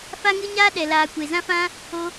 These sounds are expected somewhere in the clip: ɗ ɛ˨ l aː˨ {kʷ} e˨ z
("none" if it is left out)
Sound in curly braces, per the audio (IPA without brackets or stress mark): kʷ